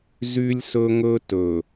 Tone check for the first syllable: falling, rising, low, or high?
high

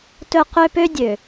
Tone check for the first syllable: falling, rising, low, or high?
high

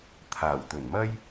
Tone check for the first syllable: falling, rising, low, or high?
low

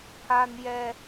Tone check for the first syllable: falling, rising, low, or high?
high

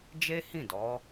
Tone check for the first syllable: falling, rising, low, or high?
high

